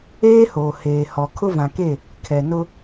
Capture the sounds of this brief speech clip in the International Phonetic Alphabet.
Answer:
eː˦hoː˨ heː˨hɔ˨kʰʊ˦ vã˨ke˦˨ | kʰɛ˨nʊ˦

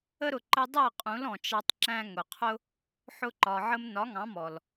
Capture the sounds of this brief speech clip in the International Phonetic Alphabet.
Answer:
ə˦ɾʊ˨ ǃə˧dˤɜ˦˨qʼũ˨˦l ɔ̃˨t͡ʃɑ˧tˤ ǁæ̃˧ŋʊ˨qʰʊ˦ | ħʊ˧ǃɒ˨ʕə˧m nɒ˨˦ŋɑ̃˨˦mɔ˨l

